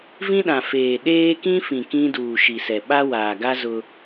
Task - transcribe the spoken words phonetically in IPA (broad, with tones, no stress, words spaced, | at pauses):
vĩ˦ɗã˨feː˨ ɗeː˦kĩ˦fĩ˨ kĩ˦ duː˨ʃi˨sɛ˨ ɓa˦waː˨ɡa˦ zʊ˦